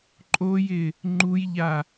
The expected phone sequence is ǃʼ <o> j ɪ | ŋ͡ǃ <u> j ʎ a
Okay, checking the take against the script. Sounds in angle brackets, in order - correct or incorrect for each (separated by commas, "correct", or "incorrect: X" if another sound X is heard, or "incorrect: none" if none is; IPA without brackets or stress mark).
correct, correct